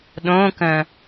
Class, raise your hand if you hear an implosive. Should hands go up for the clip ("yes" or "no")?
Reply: yes